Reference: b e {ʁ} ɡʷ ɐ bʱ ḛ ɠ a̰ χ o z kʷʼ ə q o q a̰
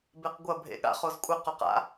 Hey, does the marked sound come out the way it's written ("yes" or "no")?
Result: no